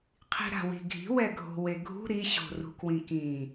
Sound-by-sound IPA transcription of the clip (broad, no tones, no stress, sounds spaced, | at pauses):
qʰ i̤ ɾ a̤ w i̤ ɡʱ i̤ w ɛ ɡʱ o̤ w e ɡʱ ṳ ɾ i ɕ o̤ r ṳ k w ĩ k ĩ